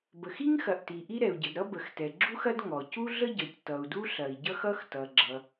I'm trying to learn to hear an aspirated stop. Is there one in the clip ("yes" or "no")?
no